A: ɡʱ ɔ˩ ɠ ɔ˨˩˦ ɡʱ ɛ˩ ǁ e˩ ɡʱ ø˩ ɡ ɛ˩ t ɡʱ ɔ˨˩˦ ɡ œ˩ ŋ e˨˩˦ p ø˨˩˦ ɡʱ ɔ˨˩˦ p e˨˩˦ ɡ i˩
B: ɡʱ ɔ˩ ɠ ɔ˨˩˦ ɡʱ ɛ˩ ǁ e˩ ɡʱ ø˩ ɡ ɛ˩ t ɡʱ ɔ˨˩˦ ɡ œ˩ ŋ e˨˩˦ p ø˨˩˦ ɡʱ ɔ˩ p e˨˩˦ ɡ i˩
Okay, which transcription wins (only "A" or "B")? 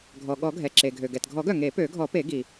A